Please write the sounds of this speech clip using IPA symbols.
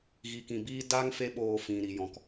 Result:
ɣi˨kĩ˨biː˦ da˦ŋ fe˦ɓoː˧fĩ˨ ɾi˨jɔ̃˨k

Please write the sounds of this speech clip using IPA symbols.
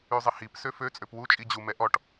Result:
yzˤɪhip søfø t͡sʼøpwu t͡ʃʼid͡ʑu mɛʔɔʈ

